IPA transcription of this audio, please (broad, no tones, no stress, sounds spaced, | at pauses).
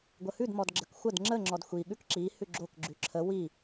ɡʷ ə h ʉ d m ɔ d ɡ͡ǁ ə k xʷ ə d ŋ͡ǁ ə ŋ͡ǁ ɔ d xʷ i ɠ ʉ k ǁ i h ʉ ɡ͡ǁ o k ɡ͡ǁ ʉ ǁʰ ə w i